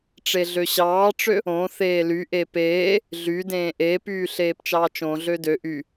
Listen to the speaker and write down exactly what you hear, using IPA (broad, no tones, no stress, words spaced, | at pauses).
ʈ͡ʂeɮøɕɑːʈ͡ʂø | õ θeːly ʔepeː | ɮydẽː ʔeːpyː ɬeːpt͡ʃɑːt͡ʃõ ɮødø ʔy